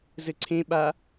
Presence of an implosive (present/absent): present